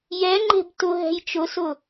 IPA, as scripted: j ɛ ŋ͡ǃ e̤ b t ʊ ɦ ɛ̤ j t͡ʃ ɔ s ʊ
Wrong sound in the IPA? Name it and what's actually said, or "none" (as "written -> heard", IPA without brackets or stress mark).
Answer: ɔ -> ʊ